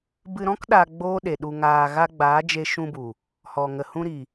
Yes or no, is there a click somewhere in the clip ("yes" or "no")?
no